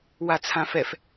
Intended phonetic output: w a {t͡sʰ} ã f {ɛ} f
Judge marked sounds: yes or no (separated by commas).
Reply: yes, yes